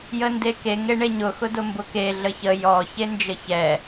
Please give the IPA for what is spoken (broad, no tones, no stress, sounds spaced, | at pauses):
j ə n d e k e ŋ e ɳ e ɲ ʊ x ʊ d ʊ m b ʊ k e ɮ ə ç ə j ɔ ç e n d͡ʒ ə ç ɛ